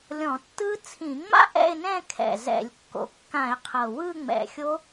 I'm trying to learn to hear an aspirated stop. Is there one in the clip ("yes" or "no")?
yes